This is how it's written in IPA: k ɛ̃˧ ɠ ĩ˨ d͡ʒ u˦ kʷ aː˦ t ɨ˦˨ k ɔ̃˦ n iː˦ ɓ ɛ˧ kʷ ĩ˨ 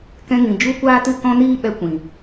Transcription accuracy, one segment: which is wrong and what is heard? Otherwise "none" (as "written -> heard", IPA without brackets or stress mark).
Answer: ɠ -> ŋ